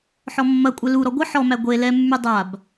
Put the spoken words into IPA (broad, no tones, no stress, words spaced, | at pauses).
ħɔmːɐkʷʼɛ luɾɔ ɡʷə ħɔmæ ɡʷe lɛmːy dˤab